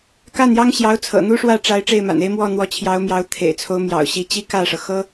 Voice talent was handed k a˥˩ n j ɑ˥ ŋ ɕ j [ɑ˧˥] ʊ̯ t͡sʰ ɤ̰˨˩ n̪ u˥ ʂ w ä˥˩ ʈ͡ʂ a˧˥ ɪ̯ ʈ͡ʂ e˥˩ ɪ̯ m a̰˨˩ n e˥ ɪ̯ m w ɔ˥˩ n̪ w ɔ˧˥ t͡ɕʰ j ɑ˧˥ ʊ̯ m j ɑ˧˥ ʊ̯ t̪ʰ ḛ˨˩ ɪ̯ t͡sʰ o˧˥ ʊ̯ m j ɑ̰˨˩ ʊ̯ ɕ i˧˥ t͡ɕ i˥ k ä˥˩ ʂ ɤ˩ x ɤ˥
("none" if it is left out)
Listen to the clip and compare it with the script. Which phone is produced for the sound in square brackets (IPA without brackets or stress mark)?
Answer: ɑ˧˥